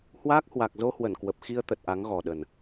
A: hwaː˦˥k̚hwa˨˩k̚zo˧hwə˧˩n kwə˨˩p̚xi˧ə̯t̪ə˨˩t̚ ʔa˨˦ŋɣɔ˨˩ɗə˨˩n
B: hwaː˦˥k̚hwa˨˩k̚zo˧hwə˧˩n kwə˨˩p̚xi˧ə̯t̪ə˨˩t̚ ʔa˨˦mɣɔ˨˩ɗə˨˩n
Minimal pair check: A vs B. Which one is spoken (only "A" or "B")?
A